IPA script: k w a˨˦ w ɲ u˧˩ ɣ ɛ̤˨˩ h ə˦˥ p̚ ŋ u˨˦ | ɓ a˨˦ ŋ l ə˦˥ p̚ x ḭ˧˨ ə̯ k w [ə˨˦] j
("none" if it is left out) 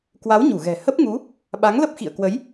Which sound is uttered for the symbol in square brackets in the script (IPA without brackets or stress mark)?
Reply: ə˨˦